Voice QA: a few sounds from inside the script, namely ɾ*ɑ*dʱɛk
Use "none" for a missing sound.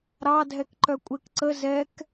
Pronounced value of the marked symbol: ɑ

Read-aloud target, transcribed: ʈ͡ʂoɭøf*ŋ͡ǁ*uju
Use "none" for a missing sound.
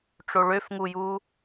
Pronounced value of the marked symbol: ŋ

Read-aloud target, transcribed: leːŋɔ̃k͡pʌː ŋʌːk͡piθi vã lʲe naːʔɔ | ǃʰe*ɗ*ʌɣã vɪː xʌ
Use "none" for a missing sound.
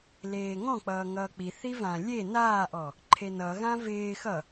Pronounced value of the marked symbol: n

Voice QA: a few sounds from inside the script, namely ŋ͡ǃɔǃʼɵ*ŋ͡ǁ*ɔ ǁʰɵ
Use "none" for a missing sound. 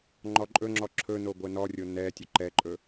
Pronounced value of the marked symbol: ŋ͡ǁ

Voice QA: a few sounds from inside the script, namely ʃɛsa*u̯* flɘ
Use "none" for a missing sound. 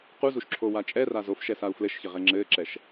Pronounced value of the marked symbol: u̯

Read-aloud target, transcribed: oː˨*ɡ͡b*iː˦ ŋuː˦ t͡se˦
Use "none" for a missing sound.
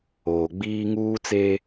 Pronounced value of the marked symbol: ɡ͡b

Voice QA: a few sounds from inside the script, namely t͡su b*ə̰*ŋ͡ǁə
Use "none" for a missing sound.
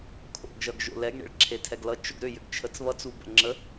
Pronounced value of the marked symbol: ə̰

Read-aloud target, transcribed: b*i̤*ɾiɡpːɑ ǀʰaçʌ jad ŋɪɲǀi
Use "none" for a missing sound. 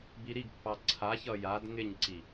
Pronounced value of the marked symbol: i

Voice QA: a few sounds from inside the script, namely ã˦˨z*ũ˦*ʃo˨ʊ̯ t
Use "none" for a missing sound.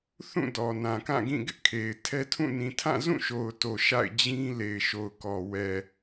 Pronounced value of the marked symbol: ũ˦˨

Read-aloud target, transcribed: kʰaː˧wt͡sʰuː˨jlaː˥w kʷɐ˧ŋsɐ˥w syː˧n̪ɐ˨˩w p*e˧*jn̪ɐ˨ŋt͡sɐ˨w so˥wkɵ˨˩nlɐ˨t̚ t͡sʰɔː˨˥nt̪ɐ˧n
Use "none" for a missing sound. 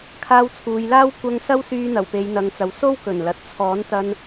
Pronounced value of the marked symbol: e˨˧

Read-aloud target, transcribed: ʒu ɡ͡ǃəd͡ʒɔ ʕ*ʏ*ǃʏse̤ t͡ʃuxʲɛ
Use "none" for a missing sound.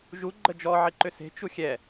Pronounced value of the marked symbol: ɪ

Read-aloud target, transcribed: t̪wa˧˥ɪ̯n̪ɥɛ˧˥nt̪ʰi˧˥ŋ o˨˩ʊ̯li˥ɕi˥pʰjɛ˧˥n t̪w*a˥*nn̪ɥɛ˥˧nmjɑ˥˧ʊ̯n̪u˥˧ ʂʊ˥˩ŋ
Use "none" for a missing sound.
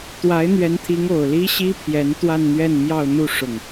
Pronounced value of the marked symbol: a˥˧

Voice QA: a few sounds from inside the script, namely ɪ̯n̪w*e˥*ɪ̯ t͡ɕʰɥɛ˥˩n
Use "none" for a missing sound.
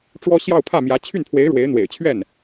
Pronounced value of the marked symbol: ḛ˨˩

